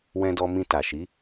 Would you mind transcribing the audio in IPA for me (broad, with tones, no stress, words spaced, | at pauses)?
wɛ̃˧dɔ˧ mĩ˧ta˨ʃi˨˦